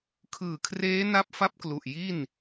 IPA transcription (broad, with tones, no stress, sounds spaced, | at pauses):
kʰ ɯː˨˩ kʰ r eː˦˥ n a˥˩ p̚ f a˥˩ p̚ k l u˨˩ ʔ j i˥˩ n